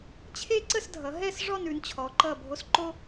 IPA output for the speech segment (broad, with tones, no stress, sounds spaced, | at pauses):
t͡ɕʰ e˥ ǀ ə˥˧ s dʱ ʌ˩˧ ɦ ɛ˥˧ s ʐ ɔ˥˧ n ʉ˩˧ n t͡ɕʰ ɔ˩˧ ǃ ʌ˧˩ bʱ o˧ s ǃ o˥